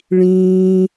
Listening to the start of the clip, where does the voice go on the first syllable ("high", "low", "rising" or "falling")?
high